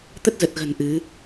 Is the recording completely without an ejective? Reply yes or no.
yes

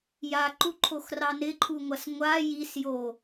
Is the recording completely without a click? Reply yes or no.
no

